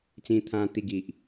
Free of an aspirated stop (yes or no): no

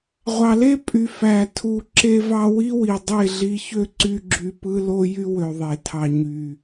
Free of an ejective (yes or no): no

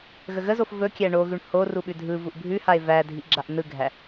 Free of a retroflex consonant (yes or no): no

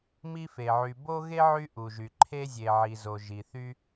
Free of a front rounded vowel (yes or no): no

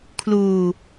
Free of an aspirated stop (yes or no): no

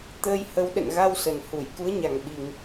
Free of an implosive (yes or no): no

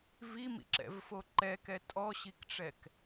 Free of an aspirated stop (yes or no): yes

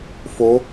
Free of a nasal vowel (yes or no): yes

